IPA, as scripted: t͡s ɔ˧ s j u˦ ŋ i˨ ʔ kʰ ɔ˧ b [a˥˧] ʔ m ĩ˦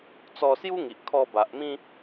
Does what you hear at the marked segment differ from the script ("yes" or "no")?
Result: yes